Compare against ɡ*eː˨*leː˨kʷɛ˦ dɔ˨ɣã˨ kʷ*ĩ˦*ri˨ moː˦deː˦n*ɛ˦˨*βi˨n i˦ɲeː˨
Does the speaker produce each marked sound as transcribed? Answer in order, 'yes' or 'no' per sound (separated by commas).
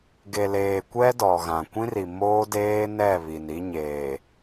no, yes, yes